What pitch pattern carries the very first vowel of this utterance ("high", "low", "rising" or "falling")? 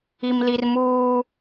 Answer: high